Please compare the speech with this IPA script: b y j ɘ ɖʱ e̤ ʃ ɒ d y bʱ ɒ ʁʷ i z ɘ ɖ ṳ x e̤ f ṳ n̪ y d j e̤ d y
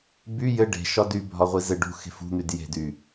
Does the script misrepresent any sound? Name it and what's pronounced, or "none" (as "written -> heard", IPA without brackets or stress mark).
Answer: ɖʱ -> ɖ